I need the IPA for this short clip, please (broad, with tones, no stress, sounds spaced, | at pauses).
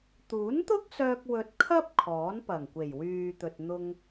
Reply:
t̪ uː˨˥ n t̪ ʊ˥ k̚ s œː˧ k̚ w ɵ˧ t̚ kʰ ɐ˥ p̚ kʰ ɔː˨˥ n p ɐ˨˩ ŋ kʷ e˨˩ j w yː˨ t̪ ɵ˨ t̚ n̪ ʊ˧ ŋ